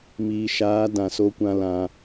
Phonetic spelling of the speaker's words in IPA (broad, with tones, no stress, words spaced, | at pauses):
miː˨ʃaː˨˦ dã˨so˦kʷã˦ lã˧